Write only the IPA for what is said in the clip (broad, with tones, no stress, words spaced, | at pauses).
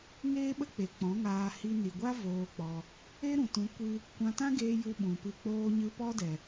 ŋeː˦ɓə˦k͡pe˨ k͡pɔ̃˨˦ŋaː˧ hi˧ ni˨ɡʷa˦ voː˦k͡pɔ˧ | e˦ɾũ˨tũ˨˦ kʷɨ˦ | kʷã˧tã˦ɡeː˧ ju˧ ɓũ˨pɨ˧k͡poː˦ɲɨ˦ pɔ˦dɛ˨